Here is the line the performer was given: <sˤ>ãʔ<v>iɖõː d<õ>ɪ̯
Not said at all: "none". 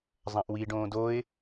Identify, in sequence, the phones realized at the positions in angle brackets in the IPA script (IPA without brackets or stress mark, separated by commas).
zˤ, w, o